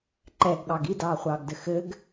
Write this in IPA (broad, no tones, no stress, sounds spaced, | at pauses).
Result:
ǃ ɛ ɡ ɠ ɑ ɡ i d ɑː χʷ ɑː ɡ d ɘ x ɘ ɡ